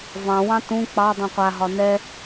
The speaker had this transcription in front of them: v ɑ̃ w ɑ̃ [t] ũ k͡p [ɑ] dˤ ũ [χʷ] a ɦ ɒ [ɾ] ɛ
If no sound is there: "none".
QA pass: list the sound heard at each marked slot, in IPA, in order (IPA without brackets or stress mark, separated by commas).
t, ɑ, qʷ, n